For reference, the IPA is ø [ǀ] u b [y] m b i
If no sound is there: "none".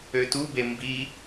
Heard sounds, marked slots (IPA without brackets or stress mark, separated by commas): t, e